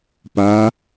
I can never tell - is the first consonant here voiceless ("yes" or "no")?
yes